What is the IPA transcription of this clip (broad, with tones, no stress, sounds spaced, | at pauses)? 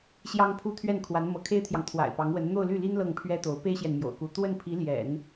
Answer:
ɕ j ɑ˥ ŋ pʰ u˥ t̪ʰ ɥ ɛ˥˩ n kʰ w a˧˥ n m ɤ˧˥ kʰ e˥ ɪ̯ t̪ʰ j ɑ˨ ŋ t̪ʰ w a̰˨˩ ɪ̯ p ɑ˧˥ ŋ w ə˧˥ n n̪ o˥˧ ʊ̯ l y˥˩ l i˥ n l ɤ˥˩ ŋ pʰ ɥ ɛ˥ t̪ o˧˥ ʊ̯ p e˥ ɪ̯ ɕ j ɛ˨ n m j o̰˨˩ ʊ̯ k u˧˥ t̪ w ə˥˩ n pʰ i˧˥ l j ɛ̰˨˩˦ n